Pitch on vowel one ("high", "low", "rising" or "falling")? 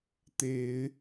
low